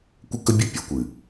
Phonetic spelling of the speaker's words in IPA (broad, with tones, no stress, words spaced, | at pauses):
kʷɯ˦kːɵ˦bʲɘ˦ pʲɵ˨˦ kʷɨ˨